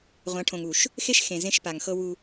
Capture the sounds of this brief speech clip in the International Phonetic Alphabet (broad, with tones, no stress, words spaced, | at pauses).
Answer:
ʁʷã˨˦ʈʰõ˨ŋu˨ʃ | xe˦ʃ xẽ˨ zẽ˦ʃ pa˨ŋxɤ˦wu˦